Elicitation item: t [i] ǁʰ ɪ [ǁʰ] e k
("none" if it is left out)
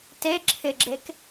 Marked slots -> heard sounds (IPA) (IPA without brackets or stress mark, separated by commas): e, ɡ͡ǁ